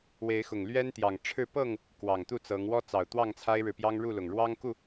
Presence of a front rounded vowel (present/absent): absent